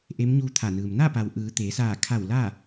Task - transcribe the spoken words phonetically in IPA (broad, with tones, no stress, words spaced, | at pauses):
ʔe˧˥mɲuː˧t̪ʰa˧˩nɯː˩m na˥˨pa˩wʔɯː˩˧ t̪eː˩˧saː˧˩ kʰa˧˩w la˥˨